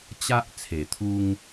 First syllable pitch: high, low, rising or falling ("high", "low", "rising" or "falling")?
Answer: high